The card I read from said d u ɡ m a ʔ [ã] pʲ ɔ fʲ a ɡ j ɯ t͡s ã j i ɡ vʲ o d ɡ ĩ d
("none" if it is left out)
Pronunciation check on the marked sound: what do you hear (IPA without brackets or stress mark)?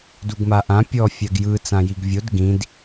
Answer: ã